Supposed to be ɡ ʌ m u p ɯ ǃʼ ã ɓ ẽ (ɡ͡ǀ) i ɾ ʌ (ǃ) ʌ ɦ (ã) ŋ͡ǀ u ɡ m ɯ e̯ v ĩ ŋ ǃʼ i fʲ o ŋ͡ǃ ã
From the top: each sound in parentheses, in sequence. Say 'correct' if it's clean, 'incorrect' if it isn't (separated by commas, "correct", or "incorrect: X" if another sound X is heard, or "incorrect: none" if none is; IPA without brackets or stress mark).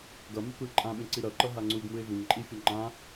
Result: incorrect: ǀ, correct, incorrect: a